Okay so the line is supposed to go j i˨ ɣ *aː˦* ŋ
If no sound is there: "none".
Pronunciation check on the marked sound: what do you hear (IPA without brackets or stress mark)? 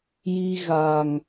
aː˨